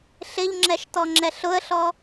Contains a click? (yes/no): yes